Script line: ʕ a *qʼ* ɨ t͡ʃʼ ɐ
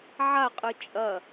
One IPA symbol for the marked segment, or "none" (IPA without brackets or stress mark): qʼ